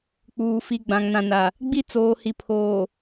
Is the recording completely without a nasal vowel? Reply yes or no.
no